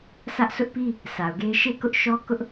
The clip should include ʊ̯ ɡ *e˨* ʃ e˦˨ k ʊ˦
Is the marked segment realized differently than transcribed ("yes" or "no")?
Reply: yes